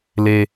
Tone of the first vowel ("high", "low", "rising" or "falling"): low